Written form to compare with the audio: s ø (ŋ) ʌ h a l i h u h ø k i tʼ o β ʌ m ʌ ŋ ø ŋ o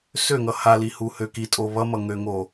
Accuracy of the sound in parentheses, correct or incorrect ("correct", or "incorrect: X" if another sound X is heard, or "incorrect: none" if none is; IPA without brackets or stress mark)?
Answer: correct